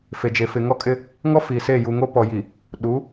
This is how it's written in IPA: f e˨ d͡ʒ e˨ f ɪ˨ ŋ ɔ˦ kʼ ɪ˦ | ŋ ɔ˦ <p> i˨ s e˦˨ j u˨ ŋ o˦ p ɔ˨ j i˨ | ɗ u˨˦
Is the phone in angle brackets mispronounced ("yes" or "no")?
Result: yes